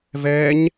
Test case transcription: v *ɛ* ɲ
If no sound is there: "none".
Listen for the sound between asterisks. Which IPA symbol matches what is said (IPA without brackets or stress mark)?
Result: ɛ